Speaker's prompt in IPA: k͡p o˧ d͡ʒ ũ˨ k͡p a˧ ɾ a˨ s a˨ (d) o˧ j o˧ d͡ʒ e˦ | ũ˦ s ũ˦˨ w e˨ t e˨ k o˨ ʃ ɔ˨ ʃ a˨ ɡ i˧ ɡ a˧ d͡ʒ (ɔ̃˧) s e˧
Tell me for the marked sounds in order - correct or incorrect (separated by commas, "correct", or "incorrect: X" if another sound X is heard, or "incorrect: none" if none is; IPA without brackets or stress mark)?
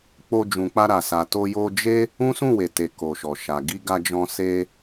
incorrect: t, correct